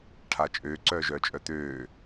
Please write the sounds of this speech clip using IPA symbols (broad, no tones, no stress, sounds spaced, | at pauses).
ʈʰ a t͡ʃʼ øː ǀ œː ʒ œː t͡ʃʼ œ t̪ øː